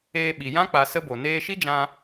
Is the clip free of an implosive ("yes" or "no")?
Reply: no